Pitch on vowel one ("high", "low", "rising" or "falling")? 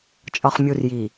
low